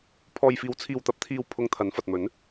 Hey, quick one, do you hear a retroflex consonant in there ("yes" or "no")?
no